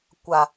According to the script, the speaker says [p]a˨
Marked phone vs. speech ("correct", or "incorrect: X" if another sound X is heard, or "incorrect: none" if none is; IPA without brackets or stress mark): incorrect: kʷ